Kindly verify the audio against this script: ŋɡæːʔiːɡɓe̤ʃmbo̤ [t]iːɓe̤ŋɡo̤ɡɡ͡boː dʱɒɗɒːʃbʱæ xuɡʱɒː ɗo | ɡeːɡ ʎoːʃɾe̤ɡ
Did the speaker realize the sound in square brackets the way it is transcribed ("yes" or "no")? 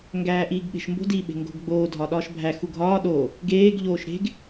no